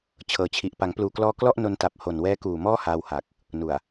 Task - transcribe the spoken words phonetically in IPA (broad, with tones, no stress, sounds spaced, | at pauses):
t͡ɕʰ ɤː˩˦ t͡ɕʰ i˨˩ ʔ p a˩˦ ŋ p l uː˨˩ k l ɔː˧ k l ɔ˥˩ ʔ n o˧ n t a˨˩ p̚ h o˨˩ n w ɛː˦˥ k uː˨˩ m ɔː˥˩ h aː˧ w h a˨˩ k̚ | n u˨˩ a̯